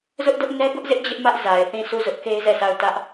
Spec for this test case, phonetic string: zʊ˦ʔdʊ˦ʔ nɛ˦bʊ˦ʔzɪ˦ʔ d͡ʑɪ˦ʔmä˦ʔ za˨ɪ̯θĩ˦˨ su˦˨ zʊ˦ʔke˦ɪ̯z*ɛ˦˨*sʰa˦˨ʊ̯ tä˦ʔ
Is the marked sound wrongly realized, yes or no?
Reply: no